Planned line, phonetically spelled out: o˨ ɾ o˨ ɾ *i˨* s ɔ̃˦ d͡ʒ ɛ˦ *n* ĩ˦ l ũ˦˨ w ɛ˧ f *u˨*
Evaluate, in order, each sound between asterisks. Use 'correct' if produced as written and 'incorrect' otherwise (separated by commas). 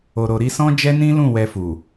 incorrect, correct, correct